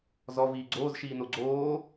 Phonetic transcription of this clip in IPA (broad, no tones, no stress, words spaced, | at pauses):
zɔ viːɡ͡ǀoːz ʃiːnoɡ͡ǀoː